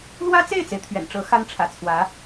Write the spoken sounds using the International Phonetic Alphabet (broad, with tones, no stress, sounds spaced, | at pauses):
l w ä˥ t͡s e˥˩ ɪ̯ t͡s e˩ ɪ̯ t̪ʰ ɥ ɛ̰˨˩ n ʈ͡ʂ ɤ˧˥ x a˥ n ʈ͡ʂʰ ä̰˨˩ t͡sʰ w ä˧˥